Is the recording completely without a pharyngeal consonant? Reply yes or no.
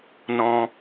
yes